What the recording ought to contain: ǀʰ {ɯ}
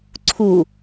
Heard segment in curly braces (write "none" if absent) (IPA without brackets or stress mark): u